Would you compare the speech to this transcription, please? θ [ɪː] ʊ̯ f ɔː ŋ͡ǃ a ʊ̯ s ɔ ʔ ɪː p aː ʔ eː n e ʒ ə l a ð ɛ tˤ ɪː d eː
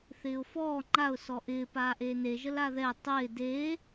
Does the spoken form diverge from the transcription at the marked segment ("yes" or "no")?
no